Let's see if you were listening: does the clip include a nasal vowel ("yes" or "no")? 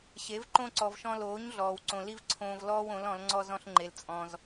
yes